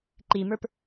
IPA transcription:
ǃ i m ə˞ p

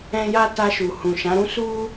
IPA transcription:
ɛ̃˦ j a˦ t a˧ ʃ u˨ h ũ˨ ʃ ã˨˦ ɾ ũ˦ s u˦

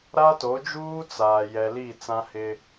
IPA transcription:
ɾ a˦ t o˨˦ d͡ʒ uː˦ t͡s aː˨ j ɛ˨ l i˦˨ t͡s ã˦ h ɪ˦

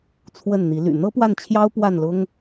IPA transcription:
t͡sʰ w ə˥˩ n n̪ i˧˥ l y̰˨˩ n̪ ɤ˥ p w a˥˩ n t͡ɕʰ j ɑ˥ ʊ̯ p w a˥˩ n l ʊ˥ ŋ

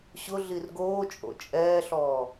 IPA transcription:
ɕ ʊ ɮ i r ɡ oː t͡ʃʼ o̰ t͡ʃʼ ɛː ɬ ɔː

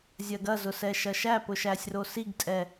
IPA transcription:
zʲ ɐ ɡ ɐ z ʊ s ɛ ʃ ɐ ʃ æ p ʊ ʃ æ sʲ r o s i ɡ tʼ ɛ

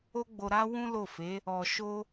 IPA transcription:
o˦ ɡ͡b o˧ ɾ a˦ w ũ˦ l o˦˨ f e˨˦ | ɔ˧ ʃ o˦

